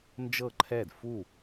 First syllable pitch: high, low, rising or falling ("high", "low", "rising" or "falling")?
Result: falling